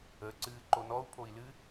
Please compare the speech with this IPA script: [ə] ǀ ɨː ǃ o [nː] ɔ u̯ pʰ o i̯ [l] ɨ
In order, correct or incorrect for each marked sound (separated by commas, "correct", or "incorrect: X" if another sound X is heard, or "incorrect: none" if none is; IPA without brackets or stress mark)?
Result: correct, incorrect: n, correct